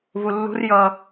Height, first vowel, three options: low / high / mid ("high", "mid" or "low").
high